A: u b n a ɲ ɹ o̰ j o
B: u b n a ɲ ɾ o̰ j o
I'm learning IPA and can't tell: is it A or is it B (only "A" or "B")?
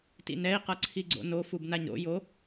B